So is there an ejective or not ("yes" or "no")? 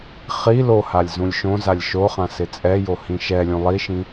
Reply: yes